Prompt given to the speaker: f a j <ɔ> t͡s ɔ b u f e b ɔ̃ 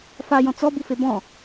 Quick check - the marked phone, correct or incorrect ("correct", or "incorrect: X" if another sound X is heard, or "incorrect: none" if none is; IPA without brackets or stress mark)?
incorrect: ɔ̃